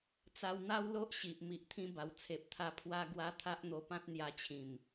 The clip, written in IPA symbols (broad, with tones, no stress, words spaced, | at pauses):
t͡sa˧wn̪a˦wlo˦ʔ ɕi˨ʔ mi˨ʔt̪ʰĩ˧ ba˧w t͡sʰe˨p̚t̪ʰa˧ pʰwa˦ɡwa˦ t̪ʰa˦ʔn̪o˧pã˦t̚ n̪ja˧t͡ɕʰĩ˨˩m